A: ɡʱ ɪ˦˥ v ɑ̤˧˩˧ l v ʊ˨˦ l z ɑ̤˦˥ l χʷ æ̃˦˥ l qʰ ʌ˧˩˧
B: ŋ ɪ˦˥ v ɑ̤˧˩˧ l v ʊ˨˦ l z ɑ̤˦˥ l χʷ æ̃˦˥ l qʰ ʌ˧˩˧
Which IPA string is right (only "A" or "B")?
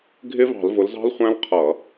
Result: A